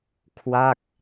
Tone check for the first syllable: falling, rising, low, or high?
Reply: falling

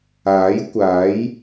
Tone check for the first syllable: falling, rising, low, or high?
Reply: rising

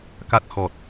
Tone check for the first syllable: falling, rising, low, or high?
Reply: low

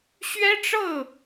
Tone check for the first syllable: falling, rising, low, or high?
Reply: high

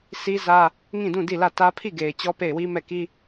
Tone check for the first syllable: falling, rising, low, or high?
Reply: high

